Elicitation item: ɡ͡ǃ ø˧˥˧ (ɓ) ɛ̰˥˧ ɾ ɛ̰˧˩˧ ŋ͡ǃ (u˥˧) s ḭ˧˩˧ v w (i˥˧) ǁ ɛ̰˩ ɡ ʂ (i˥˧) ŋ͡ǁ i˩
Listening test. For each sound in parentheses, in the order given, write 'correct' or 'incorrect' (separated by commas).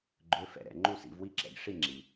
incorrect, correct, correct, correct